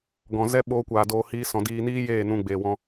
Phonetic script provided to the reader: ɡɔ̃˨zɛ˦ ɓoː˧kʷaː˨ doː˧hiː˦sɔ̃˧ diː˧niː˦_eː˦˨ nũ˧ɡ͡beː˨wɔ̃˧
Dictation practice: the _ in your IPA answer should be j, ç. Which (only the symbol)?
j